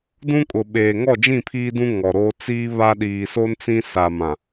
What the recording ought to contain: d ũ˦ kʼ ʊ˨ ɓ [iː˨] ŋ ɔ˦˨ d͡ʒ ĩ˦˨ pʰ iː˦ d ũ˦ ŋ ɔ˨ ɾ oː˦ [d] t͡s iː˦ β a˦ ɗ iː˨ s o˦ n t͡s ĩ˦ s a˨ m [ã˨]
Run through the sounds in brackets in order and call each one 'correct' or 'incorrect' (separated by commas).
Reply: incorrect, incorrect, correct